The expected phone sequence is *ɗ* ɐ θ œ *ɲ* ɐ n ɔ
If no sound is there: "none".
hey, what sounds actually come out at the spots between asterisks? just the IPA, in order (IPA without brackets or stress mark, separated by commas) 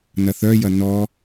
n, j